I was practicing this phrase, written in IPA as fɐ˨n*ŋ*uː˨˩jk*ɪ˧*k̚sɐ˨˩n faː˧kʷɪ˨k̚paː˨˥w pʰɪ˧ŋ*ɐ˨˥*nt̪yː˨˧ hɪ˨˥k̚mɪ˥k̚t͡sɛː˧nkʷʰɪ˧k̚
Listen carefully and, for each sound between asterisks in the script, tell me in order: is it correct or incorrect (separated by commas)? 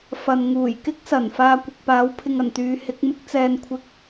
correct, incorrect, incorrect